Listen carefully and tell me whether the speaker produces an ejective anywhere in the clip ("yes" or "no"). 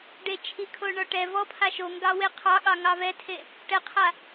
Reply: no